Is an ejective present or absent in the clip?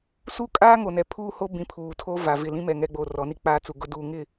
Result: present